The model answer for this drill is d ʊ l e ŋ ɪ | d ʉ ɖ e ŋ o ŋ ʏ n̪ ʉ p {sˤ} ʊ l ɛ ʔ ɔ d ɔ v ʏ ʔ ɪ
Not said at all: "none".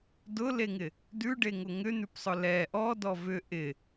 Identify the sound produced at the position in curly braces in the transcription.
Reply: sˤ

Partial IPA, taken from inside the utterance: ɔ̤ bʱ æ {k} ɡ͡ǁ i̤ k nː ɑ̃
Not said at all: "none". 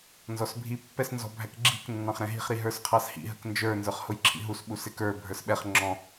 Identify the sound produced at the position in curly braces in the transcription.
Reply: k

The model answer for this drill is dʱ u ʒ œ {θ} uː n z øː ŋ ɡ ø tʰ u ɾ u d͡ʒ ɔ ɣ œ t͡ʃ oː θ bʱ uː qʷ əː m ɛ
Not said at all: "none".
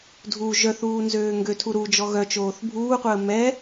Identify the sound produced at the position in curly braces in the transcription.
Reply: θ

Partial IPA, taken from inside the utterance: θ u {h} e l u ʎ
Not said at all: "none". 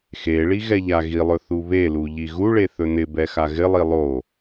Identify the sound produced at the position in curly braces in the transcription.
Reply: β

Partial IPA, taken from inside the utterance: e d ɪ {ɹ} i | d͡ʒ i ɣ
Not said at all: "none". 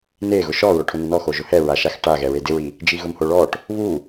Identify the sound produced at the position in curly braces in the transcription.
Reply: ɹ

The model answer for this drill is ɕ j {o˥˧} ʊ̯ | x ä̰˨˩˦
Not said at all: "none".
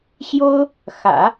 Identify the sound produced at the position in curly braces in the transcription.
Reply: o˥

